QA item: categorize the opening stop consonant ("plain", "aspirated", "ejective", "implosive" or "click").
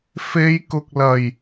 plain